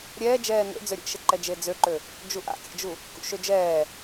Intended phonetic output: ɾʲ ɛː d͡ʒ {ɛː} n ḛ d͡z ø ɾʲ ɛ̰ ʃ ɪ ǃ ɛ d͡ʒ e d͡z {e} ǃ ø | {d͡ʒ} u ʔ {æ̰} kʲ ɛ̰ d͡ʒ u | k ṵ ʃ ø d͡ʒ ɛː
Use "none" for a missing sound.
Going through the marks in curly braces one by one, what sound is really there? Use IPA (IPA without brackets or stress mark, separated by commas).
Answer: ɛː, ø, d͡ʒ, a̰